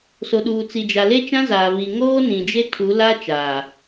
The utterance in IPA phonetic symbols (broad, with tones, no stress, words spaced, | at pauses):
so˨ɗuː˨t͡si˨ d͡ʒa˨le˦t͡ʃã˦zaː˨ βi˨ŋoː˦ nĩ˨d͡ʒe˦tʰu˨˦ la˦ t͡ʃaː˨